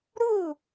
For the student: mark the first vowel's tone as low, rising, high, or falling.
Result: falling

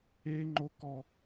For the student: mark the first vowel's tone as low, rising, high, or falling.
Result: high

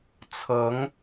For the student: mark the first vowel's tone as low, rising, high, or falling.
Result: rising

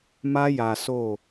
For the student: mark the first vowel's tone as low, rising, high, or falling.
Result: high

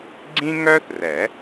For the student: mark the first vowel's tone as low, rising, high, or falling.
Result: high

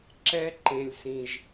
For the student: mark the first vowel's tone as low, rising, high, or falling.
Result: high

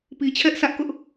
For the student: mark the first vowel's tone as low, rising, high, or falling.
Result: low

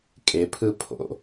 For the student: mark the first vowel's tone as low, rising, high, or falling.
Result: rising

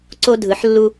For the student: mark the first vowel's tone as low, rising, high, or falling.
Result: high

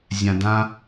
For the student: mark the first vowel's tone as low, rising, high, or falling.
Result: low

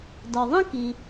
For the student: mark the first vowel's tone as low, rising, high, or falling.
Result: low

